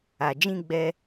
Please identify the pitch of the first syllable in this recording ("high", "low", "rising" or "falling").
low